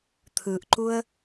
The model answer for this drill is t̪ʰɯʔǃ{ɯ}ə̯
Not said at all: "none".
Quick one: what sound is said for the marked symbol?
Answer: u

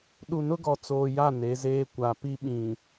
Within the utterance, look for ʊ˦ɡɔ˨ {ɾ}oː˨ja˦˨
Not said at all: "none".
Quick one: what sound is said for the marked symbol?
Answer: t͡s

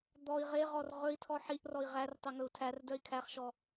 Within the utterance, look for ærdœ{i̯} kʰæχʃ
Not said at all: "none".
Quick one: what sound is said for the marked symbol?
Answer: i̯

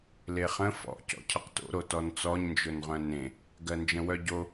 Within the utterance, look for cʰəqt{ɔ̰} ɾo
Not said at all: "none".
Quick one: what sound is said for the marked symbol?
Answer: o̰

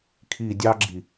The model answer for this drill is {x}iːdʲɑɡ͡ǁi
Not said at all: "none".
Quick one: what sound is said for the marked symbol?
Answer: kʰ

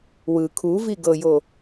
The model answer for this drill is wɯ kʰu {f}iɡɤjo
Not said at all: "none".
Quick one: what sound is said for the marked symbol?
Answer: v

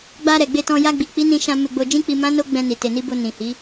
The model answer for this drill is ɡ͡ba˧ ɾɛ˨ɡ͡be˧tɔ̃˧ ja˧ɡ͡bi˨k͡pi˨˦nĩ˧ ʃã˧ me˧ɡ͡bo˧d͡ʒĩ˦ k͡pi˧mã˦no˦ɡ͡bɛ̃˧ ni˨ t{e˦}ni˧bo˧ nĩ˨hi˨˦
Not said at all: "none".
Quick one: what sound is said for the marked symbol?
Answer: e˨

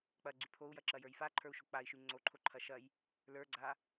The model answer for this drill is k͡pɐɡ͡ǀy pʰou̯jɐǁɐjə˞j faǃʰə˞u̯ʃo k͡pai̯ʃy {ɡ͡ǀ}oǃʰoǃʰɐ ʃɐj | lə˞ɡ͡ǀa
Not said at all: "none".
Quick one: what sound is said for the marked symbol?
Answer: ŋ͡ǀ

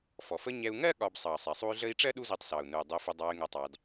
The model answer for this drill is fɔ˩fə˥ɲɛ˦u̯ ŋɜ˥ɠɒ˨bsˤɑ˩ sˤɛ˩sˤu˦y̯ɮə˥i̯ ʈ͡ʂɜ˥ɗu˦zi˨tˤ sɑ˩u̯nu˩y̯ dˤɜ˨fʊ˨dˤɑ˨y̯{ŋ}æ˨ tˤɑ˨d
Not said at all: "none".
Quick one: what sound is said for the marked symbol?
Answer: ŋ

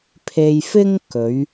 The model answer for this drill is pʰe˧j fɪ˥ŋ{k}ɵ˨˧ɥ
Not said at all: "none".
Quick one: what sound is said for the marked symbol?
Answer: k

